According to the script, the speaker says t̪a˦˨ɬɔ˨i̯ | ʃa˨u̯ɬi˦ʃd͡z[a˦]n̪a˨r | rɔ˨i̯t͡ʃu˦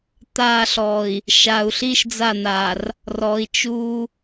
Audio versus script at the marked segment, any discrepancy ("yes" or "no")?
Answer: yes